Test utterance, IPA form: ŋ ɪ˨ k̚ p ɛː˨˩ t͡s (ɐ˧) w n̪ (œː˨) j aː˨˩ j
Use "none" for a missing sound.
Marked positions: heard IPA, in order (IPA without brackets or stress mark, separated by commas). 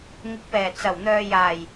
ɐ˨˩, œː˨